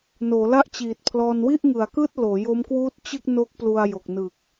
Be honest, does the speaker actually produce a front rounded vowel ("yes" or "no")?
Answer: no